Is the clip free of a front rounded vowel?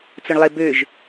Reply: no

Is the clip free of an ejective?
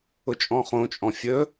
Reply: no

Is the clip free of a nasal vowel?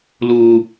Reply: yes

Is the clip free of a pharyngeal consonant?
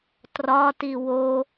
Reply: yes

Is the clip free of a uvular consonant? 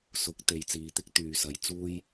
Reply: yes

